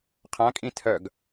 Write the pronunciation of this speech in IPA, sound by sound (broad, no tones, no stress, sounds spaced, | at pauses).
qʰ ã kʼ ĩ tʰ œ ɡ